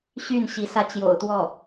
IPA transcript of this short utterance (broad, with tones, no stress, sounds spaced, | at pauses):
ɕ y˥˩ n ɕ i˧˥ s ä˥˩ t͡ɕ j o̰˨˩ ʊ̯ t̪ w ɔ˥˩